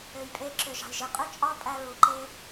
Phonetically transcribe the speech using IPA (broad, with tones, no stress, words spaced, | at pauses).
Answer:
ø˨jpʼe˧ǁø˨ ʒɑ̤˨jʒɯ˧ qʼø˦ t͡ʃʼɑ˦pʼæ˧ɹu˨ ǃe˦